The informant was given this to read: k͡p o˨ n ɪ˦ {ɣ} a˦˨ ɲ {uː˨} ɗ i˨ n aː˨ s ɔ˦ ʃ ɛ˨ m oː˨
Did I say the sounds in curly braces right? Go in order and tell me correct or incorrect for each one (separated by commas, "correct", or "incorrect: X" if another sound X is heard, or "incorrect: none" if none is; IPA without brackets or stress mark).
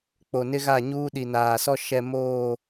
correct, incorrect: uː˦